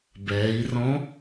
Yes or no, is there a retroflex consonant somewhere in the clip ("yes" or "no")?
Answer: no